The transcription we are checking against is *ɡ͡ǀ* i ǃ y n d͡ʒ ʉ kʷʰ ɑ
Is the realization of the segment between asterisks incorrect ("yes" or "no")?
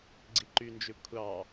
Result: no